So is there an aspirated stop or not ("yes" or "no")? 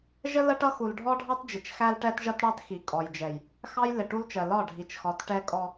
no